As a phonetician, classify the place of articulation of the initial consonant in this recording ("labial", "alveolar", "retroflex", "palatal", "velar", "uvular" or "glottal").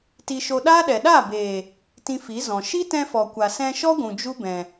alveolar